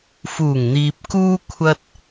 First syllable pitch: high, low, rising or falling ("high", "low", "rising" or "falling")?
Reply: low